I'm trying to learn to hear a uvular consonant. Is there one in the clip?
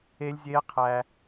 yes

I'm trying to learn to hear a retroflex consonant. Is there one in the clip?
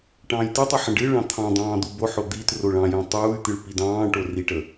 yes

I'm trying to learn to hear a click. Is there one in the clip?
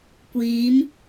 no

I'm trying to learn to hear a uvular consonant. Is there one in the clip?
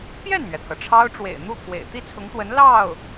no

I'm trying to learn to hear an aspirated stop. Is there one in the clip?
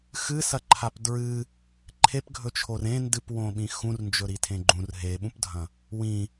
yes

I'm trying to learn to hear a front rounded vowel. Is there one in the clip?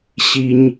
no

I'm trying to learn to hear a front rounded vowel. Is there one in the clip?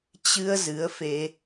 no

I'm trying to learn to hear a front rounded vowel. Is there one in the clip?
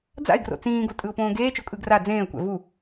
no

